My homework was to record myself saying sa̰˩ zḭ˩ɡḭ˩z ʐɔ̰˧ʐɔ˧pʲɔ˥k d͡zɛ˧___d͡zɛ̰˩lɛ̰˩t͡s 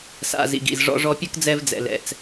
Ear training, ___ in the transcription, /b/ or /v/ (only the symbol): v